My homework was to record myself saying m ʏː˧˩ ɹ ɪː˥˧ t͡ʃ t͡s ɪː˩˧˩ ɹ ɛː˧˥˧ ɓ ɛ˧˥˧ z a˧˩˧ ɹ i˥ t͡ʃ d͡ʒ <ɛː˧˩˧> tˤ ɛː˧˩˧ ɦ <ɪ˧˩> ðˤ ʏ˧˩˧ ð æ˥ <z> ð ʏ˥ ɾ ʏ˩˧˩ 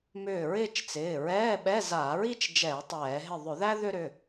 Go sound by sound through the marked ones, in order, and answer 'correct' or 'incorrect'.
correct, correct, incorrect: none

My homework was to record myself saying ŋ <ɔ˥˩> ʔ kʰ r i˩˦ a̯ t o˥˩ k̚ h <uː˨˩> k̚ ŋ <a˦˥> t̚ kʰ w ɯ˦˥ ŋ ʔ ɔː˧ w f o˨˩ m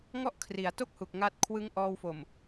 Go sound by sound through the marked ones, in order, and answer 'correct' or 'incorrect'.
correct, incorrect: u˨˩, correct

